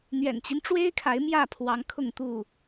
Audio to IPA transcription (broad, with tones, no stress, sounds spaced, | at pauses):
n̪ ɥ ɛ̰˨˩ n t͡ɕ i˦ n ʈ͡ʂ w e˦ ɪ̯ kʰ a˨˦ ɪ̯ m j ä˥˨ pʰ w ɑ˨˦ ŋ kʰ ʊ˥˨ ŋ t̪ u˥˨